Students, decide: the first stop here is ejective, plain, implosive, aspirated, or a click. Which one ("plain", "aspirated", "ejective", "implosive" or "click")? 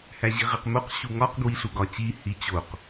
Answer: plain